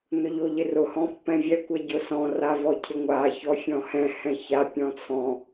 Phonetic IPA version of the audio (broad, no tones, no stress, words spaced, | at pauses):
nʊʎoʎɪrʊ hɔ̃pːɛ̃vʲɛ kʷɛɟʊsɔ̃ ravɔcʰɪŋʷa çɔfʲɔ̃hɛ̃ hɛ̃ça pʲɔ̃t͡sʰɔ̃